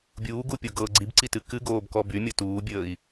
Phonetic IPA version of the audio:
bʲ uː ɡ u pʲ o ɡ ɤ ɡ͡ǀ i b ǀ i t ɨ k ɨ ɡ oː b k ɔ b y mʲ ɤ t uː bʲ əː i̯

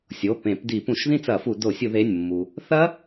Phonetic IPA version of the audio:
sʲ o˩˧˩ p ẽ˧˩˧ p d i˧˩˧ p ũ˧˩˧ ʃ ð ĩ˥˧ t͡s ɐ˧˩˧ f u˧˩˧ d o˧˩˧ sʲ u˧˩˧ ð e˩˧˩ nʲ mː u˩ | θ ɐ˦˥

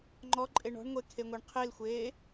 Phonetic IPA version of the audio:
ŋ͡ǃ ɔ ǃʼ e ɳ ɔ̤ ɳ ŋʷ e kʰ e ŋʷ e ɳ qʰ e l xʷ eː

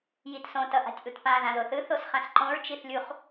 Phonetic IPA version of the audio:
j i t s õ t ʌ ʔ a̤ tʲ ʔ u t p ã ð ã ð o θ ɯ θ o s χ ã s ǃ õ ɹ t͡ʃ i θ lʲ u χ

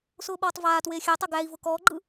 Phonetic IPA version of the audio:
s ʊː ɓ ɔː tˤ v aː t w eː xʲ æ tˤ ɐ ɡ æ i̯ v ʊ k ɔː ɡ͡ǃ ɯ

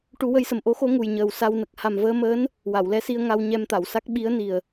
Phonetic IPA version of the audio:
ʈ u˨˩˦ w ə˧ j s ə˨˩ m ʔ o˧˥ x o˧˥ ŋ u˨˩ j ɲ əː˨˩ w s a˧ w n ə˨˩ k̚ h a˨˩ m v əː˧ m əː˧˥ n | w a˨˩˨ w l ɛ˧˥ s i˧ ə̯ ŋ a˧ w ɲ ɛ˧ m t̪ a˨˩˨ w s a˦˥ k̚ ɓ i˧˥ ə̯ n i˨˩ ə̯

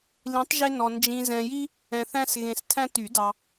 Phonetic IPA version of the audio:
l ĩ˨˥ tˤ ʒ e˦ n ɔ˨ n d͡ʒ ĩ˨ z ɛ̃˨ j i˦ | ɛ̃˨ θ æ̃˦ s ɣ ẽ˨ s tʰ æ̃˦ t y˨˩˦ d ɑ˨

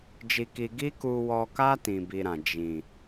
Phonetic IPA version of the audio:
d͡ʒ i˧ k i˧ ɡ i˦ k u˧ w ɔ˧ k a˦ t ĩ˧ b i˧ ɾ ã˨ d͡ʒ ĩ˨

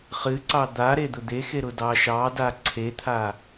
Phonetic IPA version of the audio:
χ ɨ ǀ ɑ d̪ a ɾ e d̪ ʊ d̪ e x e ɾ ʊ d ɑ ʃ ɑ d a ǀʰ e t̪ʰ a

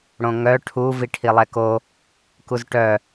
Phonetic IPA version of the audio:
ɽ õ ŋ œ ʈʰ u v i ʈʰ i lˠ ɛ k o | k u z ʈ œ

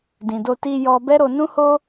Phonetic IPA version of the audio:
d ĩ˨ d o˧ t i˧ j ɔ˧ b ɛ˦ ɾ o˧ n ũ˦ h o˦

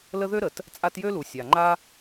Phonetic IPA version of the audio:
l ə˦ ð ø˥ ɾ ə˩ t | t͡sʼ a˦ t j ø˥ l u˩ sʲ a˩ ŋ͡ǃ a˦

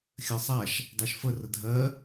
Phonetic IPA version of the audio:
xʲ ɜ sˤ a ʃ | dˤ a ʃ f ə r ə dʱ ɜ

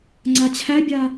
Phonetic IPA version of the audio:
ŋ͡ǀ a t͡ɕʰ æ bʲ a

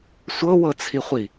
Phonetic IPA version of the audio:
sʷ ɤ w ɤ t͡sʰ i χʷ i

